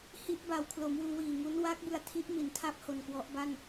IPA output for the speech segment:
h i˥˩ ʔ b a˧ w kʰ l o˩˦ m w uː˧ w iː˨˩ ŋ u˦˥ n w a˦˥ k̚ b ɯ˧ a̯ tʰ i˦˥ ʔ m i˩˦ n tʰ a˦˥ p̚ h o˧ n k w ɔ˦˥ ʔ b a˥˩ n

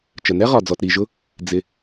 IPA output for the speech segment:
t͡ʃ ə˩ n ɛ˥ ʁ ɒ˩ d͡z ɔ˩ t ɾ i˩ ʒ ʊ˥ | d͡z ɪ˩

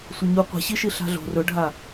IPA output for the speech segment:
sʷ ɐ ɲ u qʷ e̤ ɕ i ʃ i ɬ a̤ ɮ o̤ r ɵ ɖʱ a

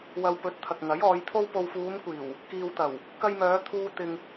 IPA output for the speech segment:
w ɐ˨ w p ɵ˨˥ t̚ t̪ʰ ɐ˨ k̚ ŋ ɐ˨˥ j ɔː˨˧ j t̪ʰ o˥ w p o˨ w f uː˨˧ m kʷ iː˨˩ w | k iː˨ w t̪ ɐ˨˩ w | k ɐ˧ j m œː˨˧ t̪ʰ uː˧ t̪ ɪ˧ ŋ

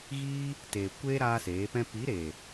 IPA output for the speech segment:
ɣ iː˦ | t eː˨ kʷ eː˦ ɾ aː˦ s eː˨˦ p ɛ̃˦ p i˨˦ ɾ eː˨

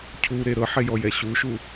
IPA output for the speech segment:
cʰ u ɾ e ɾ ɤ ħ e j ɔ j ɛ ɕ u ʃ u

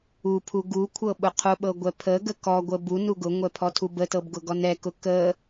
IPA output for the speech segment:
u pʰ u ɡ u kʷʰ ɤ ɓ ʊ qʰ ʊ ɓ ɤ ɡʷ ɛ pʰ ə ɡ ə k ɔ ɡʷ ə b u n u ɡ ʊ ŋʷ ɛ pʰ ɔ tʰ u b ə t ɤ b ɡ ʊ ɡ ɔ n ɛ k ʊ k ə

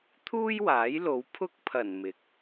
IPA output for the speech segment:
t̪ʰ uː˥ j w aː˨˥ j l o˨˧ w pʰ ʊ˥ k̚ pʰ ɐ˨˩ n m ɪ˨˥ k̚

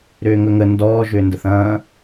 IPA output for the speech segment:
ɾ ʏː ŋ ɵ ŋ ə n d ɔː ʒ ʏː n d ə θ ɐ̃ː

